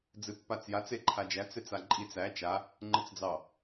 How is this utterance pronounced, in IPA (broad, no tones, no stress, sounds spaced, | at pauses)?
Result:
d͡z ɨ pː a t͡s j a t͡s e ǃʰ a d͡ʒ æ t͡s e t͡s a ǃʼ i t͡s æ t͡ʃ a | ŋ͡ǃ ɨ t͡s d͡z ɑ